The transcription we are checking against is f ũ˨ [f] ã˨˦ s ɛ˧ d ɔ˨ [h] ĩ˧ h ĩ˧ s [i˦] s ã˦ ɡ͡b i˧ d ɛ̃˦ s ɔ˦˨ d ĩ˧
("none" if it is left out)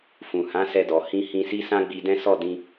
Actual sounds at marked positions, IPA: h, h, i˦

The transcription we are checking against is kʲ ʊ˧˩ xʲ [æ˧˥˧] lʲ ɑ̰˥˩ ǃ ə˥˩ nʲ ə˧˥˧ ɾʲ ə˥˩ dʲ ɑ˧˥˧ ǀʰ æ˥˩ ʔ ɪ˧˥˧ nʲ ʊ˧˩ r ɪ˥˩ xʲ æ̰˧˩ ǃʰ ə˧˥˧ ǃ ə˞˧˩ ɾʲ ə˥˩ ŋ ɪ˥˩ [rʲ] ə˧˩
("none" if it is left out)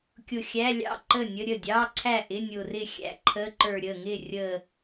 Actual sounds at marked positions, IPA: æ˧˥˧, rʲ

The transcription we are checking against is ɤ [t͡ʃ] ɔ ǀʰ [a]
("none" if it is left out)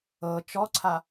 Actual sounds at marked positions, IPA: t͡ʃ, a

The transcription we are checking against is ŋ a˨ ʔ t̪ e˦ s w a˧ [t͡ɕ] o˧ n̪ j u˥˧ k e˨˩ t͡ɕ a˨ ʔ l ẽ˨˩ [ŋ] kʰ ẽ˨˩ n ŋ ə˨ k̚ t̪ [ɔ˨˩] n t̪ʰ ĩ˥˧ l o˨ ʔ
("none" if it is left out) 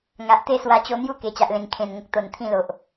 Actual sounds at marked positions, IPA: t͡ɕ, ŋ, o˨˩

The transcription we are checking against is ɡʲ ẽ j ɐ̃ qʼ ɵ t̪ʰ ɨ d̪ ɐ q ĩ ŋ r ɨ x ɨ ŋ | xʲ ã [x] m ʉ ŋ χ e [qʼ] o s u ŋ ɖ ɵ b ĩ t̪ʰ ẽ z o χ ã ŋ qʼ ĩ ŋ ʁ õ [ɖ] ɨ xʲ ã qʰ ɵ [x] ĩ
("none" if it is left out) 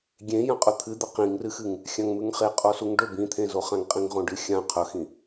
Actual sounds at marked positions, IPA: ŋ, qʼ, ɖ, x

